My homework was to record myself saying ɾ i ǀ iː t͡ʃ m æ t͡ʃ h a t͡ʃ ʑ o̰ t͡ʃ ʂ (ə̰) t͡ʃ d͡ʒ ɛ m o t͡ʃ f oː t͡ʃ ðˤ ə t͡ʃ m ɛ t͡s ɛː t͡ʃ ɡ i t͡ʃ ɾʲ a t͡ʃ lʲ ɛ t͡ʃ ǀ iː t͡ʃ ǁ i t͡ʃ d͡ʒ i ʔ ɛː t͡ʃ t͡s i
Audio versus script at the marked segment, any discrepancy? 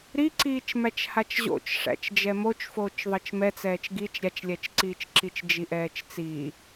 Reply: yes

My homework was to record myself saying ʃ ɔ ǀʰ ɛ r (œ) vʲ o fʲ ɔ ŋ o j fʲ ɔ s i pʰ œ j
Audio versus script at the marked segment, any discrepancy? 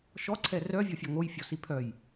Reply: no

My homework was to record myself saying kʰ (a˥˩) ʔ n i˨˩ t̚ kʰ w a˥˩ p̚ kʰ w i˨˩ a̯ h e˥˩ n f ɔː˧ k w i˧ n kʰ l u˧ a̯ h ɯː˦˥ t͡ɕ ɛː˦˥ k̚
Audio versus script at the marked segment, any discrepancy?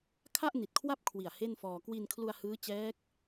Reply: no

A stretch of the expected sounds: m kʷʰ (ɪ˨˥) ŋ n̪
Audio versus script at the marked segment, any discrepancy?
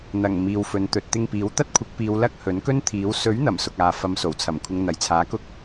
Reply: yes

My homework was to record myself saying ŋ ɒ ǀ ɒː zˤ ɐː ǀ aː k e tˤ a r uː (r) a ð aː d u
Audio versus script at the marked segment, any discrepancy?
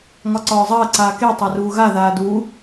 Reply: yes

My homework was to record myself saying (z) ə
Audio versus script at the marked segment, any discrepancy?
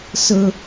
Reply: yes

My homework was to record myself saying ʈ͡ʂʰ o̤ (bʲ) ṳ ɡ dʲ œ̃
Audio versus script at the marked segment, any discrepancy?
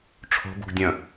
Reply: yes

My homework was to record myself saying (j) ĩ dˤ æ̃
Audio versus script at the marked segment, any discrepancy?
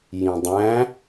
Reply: no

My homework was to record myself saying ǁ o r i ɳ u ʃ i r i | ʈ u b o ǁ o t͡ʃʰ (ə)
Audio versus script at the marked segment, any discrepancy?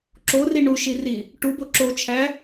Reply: yes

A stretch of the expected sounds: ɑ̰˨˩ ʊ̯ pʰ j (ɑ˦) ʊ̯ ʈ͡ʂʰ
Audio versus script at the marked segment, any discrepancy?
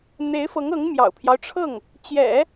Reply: no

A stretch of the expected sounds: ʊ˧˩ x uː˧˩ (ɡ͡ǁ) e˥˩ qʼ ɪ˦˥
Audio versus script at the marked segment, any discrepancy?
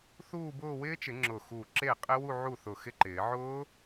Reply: yes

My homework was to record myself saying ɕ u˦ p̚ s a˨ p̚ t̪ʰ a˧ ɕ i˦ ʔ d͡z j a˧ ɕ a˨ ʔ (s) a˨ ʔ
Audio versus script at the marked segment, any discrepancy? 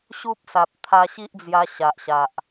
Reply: yes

